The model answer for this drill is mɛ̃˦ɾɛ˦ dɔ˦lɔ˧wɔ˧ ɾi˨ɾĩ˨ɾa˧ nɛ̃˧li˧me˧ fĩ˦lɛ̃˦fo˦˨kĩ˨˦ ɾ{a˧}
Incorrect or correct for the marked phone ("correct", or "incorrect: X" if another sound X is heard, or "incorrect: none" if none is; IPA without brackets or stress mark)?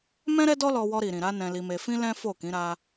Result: correct